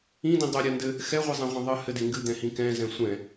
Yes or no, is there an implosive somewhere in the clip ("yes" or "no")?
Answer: no